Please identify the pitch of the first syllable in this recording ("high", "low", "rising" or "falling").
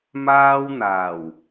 high